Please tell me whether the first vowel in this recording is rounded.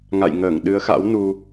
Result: no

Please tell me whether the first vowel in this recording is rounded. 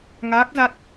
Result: no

